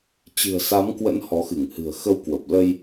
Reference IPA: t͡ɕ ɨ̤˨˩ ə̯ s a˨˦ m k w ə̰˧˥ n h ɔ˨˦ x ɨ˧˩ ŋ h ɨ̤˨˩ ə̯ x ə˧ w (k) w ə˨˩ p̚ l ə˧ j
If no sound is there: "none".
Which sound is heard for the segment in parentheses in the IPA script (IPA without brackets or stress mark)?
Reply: k